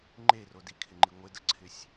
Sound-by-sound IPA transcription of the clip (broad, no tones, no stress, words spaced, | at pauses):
ŋ͡ǃero dikʰɪŋ͡ǃi ŋʷɪdəǀʰɪsʲ